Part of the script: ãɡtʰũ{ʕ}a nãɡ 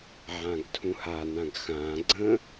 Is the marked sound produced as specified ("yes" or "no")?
no